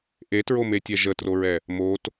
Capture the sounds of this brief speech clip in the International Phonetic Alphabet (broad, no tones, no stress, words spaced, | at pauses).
ʔetɹometʲɛ ʒətroɹɛ | mot